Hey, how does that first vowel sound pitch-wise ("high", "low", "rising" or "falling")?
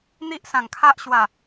high